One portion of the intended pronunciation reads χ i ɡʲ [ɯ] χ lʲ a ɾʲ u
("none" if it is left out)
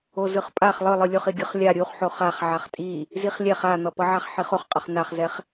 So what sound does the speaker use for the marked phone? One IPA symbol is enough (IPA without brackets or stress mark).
ɯ